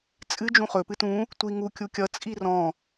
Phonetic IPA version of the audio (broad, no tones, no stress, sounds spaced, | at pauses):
t͡sʼ ɨ d͡ʒ ũ χ ɵ p ɨ t ũ | tʷ i ŋ u kʲ u kʲ ʌ t͡sʼ i r ɔ̃